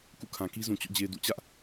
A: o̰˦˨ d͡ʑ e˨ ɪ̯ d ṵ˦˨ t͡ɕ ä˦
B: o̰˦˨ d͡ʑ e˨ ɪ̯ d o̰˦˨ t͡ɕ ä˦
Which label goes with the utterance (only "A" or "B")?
A